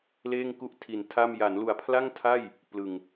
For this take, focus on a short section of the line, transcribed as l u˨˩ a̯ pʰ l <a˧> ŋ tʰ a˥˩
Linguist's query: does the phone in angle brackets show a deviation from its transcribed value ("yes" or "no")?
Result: yes